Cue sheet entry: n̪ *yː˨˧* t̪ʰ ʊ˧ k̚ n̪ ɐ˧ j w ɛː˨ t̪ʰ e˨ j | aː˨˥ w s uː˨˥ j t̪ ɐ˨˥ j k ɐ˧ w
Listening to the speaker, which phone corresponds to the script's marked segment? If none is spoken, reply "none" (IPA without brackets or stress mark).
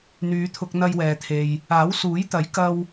yː˨˧